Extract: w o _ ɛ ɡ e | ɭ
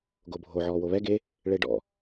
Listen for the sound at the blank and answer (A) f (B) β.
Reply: B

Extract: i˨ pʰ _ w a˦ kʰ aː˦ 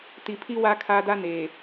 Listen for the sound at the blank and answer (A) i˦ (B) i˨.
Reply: A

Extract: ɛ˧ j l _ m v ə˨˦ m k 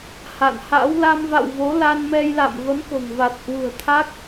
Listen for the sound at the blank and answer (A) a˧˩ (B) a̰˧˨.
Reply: B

